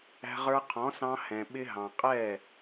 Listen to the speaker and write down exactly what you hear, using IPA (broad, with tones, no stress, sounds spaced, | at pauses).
æ̤˧ ʁ ə˞˧ qʰ ɔ̃˩˥ s ɑ̃˧ h ɛ̃˩ ɓ ɪ˧ ɦ ɑ̃˩ qʼ ɛ˥˩